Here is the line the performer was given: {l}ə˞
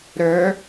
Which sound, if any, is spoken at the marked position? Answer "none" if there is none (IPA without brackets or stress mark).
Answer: ɾ